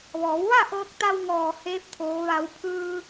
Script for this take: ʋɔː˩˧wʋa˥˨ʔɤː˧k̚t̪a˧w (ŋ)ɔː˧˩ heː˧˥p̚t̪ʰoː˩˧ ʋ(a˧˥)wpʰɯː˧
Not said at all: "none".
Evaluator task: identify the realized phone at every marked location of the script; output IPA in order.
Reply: ŋ, a˩˧

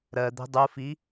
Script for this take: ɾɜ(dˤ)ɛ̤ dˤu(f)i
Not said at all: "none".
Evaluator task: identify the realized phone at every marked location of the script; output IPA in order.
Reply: d̪, f

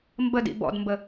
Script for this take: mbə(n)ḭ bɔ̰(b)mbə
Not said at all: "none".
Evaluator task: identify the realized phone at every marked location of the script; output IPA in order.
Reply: d, d

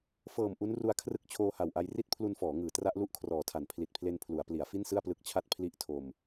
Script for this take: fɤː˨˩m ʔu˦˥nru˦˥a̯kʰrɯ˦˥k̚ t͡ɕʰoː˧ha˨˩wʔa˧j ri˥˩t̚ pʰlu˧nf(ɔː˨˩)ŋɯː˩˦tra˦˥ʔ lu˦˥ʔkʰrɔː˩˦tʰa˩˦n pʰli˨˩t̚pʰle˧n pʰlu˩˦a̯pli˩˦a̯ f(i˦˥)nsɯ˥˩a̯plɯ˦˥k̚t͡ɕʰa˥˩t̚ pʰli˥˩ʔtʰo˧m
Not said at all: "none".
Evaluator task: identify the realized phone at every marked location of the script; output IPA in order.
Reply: ɔː˩˦, i˥˩

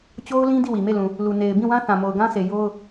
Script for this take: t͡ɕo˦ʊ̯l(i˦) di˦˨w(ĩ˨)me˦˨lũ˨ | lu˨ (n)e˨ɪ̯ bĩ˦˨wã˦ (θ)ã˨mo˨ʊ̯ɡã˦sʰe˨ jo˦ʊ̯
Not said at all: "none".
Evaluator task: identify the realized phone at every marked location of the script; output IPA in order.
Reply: ĩ˦, i˨, n, θ

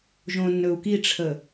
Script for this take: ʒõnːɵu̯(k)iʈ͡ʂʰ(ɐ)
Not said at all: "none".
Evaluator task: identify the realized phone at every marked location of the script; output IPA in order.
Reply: k, ə

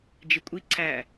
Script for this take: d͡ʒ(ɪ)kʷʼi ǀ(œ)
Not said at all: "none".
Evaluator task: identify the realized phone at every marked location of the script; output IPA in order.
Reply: ɪ, æ

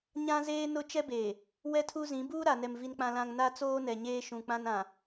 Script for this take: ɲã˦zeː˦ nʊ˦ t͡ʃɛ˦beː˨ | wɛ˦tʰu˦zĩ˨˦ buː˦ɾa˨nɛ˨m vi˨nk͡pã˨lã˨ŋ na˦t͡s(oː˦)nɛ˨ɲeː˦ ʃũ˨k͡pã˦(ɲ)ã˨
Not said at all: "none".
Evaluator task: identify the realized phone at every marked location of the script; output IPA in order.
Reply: oː˦, n

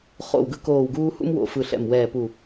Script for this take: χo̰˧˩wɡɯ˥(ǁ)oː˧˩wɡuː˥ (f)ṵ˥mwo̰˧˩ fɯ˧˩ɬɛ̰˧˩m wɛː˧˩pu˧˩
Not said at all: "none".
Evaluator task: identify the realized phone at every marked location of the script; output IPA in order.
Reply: k, h

